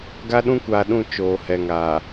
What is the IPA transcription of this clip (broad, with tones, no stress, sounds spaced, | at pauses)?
ɡ a˦ ɗ ũ˦ kʷ aː˨ ɗ ũ˦˨ t͡ʃ oː˨ h ɛ˨ ŋ aː˨